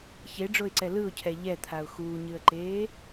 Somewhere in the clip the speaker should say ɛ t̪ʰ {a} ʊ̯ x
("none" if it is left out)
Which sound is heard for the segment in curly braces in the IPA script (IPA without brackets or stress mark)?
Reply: a